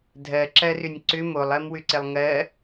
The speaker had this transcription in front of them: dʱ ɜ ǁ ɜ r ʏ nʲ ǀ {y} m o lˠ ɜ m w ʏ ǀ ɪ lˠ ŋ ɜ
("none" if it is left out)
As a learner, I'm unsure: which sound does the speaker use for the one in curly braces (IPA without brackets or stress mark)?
ʏ